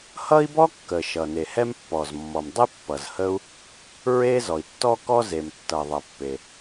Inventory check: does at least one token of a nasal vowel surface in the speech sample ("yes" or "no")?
no